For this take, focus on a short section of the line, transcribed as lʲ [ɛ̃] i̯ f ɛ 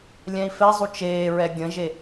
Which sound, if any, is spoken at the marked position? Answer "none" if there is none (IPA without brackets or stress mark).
ɛ̃